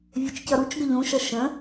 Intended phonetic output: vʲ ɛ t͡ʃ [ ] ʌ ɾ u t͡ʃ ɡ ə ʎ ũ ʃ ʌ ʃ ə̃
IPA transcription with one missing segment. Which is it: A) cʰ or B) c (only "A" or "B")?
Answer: B